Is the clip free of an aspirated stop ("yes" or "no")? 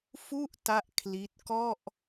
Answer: no